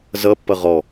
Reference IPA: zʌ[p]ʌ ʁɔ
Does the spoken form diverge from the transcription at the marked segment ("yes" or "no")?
yes